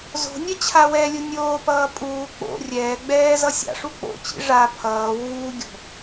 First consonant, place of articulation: alveolar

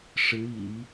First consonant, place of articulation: retroflex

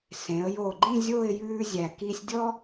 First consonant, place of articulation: alveolar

